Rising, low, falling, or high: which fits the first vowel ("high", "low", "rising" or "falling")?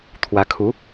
rising